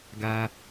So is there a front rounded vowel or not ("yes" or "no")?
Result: no